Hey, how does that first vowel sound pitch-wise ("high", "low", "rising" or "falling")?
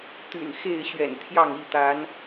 low